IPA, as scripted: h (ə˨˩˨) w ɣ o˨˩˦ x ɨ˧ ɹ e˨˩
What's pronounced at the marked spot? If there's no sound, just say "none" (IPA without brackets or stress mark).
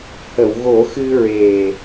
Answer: ə˨˩˨